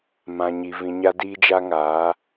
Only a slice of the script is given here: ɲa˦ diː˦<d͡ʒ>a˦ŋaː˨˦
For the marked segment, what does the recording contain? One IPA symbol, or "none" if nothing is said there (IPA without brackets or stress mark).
d͡ʒ